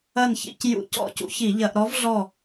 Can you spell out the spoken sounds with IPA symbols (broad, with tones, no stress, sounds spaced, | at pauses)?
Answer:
ɐ˦˨ n ç ḭ˧˩˧ c j ṵ˧˩˧ c ɔ̰˦˨ c ṵ˧˥ ç i˧˩˧ ʎ ɐ˧˩˧ ʔ ɾ ɔ˧˥ v ɮ ɔ˦˨